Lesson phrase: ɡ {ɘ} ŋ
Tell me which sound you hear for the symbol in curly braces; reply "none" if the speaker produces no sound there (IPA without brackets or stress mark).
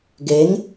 e